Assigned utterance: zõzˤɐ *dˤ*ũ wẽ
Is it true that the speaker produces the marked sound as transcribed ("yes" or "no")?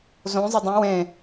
yes